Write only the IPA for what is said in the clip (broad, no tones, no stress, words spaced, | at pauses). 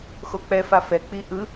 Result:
xok͡pɛfa fɛk͡pi ʔɯ